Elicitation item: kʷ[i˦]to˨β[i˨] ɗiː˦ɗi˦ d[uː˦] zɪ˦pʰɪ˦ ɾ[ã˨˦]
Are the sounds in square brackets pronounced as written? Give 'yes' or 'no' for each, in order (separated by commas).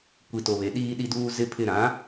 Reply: no, no, yes, yes